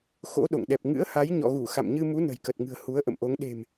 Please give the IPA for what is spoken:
xo̰˧˥ɗo̰˧˨ŋ ɗɛ˨˩p̚ŋɨ̰˧˥ə̯ha˨˦j ɲɔ̰˧˨ɣu˧˩ xa̰˧˨m ɲɨ˧mu˨˦ nə̤˨˩jkə˨˩t̚ŋɨ̤˨˩ə̯ hu˨˦ə̯ ʔə̰˧˨mʔo˨˦ŋ ɗe̤˨˩m

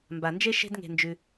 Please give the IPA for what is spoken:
mba˨nd͡ʒe˦ ʃe̤˦dŋe̤˧nd͡ʒʉ˧

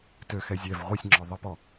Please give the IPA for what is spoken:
tøxɛ zʲɛv ʁʷisʲŋ͡ǁɔ ðˤəpɔ

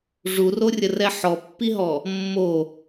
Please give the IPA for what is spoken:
ʐurorʲərɛ ħɔpːiɦɔ | mːo

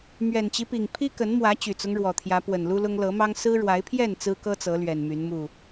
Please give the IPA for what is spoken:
mɥɛ˨˩nt͡ɕi˦pi˨˩ŋ pʰi˦kə˨˦nmwä˨˦ t͡ɕy˨˩t͡sʊ˦ŋɻwɔ˨˩t̪ʰjä˨˦ pwə˨˩nlu˦lʊ˦ŋ lɤ˨˦mɑ˦ŋ sɹ̩˦ɻwa˨˦ɪ̯pʰjɛ˥˨n t͡sɹ̩˦kɤ˦t͡sɤ˨˦ lɥɛ˨˩nmy˨˦n mu˥˨

